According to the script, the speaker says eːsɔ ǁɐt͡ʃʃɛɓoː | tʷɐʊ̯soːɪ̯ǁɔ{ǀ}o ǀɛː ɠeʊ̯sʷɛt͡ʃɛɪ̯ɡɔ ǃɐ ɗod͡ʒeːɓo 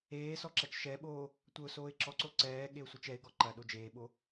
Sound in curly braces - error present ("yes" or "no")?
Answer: no